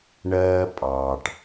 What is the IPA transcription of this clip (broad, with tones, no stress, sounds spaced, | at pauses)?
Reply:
ɳ ɜː˦ pʼ ɑː˨ ʈ